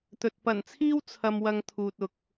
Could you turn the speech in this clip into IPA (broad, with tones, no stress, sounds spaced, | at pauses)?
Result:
t̪ ɵ˨ t̚ p ɐ˨˩ n t͡sʰ iː˥ w t͡sʰ ɐ˧ m w ɐ˧ ŋ t̪ʰ uː˨ t̚ ʊ˨ k̚